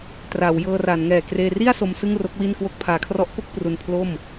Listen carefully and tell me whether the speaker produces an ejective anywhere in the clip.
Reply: no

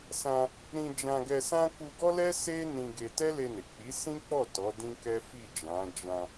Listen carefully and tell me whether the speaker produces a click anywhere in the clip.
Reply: no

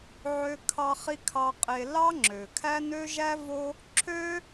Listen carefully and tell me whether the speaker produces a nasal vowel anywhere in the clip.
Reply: no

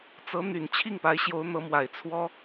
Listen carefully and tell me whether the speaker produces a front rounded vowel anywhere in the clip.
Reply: yes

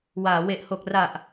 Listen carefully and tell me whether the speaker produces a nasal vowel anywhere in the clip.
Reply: no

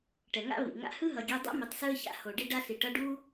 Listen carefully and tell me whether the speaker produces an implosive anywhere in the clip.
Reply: no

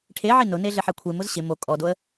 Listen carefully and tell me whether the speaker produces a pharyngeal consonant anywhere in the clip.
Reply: yes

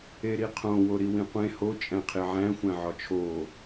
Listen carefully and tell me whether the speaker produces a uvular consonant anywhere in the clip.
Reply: yes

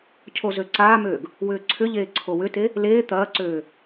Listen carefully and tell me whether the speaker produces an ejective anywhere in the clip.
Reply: no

